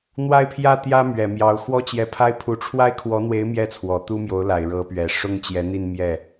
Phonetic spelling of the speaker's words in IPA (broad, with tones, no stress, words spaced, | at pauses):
n̪wa˥˧ɪ̯pʰjä˥˩t̪jä˥ mɥɛ˨˩mjɑ˧˥ʊ̯ xwɔ˥t͡ɕjɛ˧˥pʰa˥ɪ̯pʰu˧˥ ʈ͡ʂʰwa˥ɪ̯kʰwɔ˧˥n̪we˧˥ɪ̯ mjɛ˥˩ t͡sʰwɔ˨˩t̪u˥mjo˧˥ʊ̯la˨˩ɪ̯ ɻɤ˧˥pɥɛ˨˩ ʂʊ˥ŋ t͡ɕjɛ˧˥n̪i˥˧n mjɛ˥˩